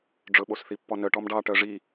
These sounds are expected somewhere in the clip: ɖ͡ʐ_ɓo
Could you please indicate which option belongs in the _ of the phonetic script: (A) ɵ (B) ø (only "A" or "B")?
A